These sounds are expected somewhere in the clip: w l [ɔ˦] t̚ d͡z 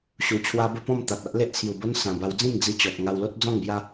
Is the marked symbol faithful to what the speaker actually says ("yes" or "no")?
no